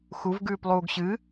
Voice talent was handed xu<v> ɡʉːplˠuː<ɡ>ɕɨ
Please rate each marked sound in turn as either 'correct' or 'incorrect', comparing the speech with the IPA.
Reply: correct, correct

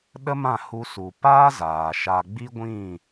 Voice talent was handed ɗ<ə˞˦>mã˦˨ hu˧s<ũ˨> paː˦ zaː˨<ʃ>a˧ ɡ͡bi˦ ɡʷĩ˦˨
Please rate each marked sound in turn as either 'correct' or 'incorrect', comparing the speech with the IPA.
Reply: incorrect: ə˦, incorrect: u˨, correct

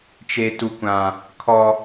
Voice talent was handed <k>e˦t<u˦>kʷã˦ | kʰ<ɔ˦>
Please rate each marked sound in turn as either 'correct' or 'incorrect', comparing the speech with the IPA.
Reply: incorrect: t͡ʃ, correct, correct

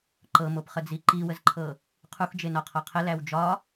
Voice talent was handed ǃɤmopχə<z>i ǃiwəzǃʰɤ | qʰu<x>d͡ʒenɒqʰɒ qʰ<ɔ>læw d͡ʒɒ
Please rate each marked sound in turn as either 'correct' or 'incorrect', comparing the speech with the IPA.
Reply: incorrect: d͡z, correct, incorrect: ə

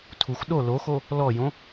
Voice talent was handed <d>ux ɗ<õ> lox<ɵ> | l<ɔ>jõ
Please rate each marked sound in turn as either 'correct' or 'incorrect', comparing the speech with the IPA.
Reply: incorrect: tʰ, incorrect: o, incorrect: o, correct

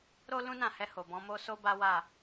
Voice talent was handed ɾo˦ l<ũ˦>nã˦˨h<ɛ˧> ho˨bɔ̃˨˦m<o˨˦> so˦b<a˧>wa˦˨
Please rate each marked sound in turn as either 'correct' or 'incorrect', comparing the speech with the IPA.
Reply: correct, correct, incorrect: o˦, incorrect: a˦

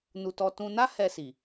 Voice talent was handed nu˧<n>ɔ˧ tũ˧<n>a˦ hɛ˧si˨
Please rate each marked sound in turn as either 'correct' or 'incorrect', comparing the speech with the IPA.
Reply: incorrect: t, correct

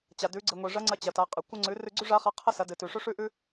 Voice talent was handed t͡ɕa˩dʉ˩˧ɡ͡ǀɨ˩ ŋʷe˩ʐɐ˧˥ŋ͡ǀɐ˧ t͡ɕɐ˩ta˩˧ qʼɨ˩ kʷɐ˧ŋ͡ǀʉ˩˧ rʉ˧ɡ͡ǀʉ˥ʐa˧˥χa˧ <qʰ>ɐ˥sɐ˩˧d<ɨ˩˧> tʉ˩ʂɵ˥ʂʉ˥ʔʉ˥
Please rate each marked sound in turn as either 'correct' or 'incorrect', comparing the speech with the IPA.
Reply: correct, incorrect: ɨ˩

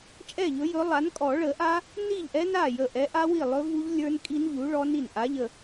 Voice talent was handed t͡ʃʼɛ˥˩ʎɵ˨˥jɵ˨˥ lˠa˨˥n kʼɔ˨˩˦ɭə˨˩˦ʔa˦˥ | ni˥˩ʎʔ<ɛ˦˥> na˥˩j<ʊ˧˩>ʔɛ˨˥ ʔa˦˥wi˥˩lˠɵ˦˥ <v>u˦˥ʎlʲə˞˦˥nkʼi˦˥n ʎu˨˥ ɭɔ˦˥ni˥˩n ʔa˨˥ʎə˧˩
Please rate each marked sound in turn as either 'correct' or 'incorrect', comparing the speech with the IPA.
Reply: correct, incorrect: ə˧˩, correct

